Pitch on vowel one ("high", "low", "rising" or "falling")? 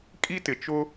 high